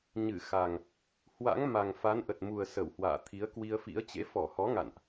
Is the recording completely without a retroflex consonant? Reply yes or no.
yes